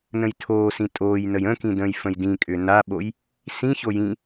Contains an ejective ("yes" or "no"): yes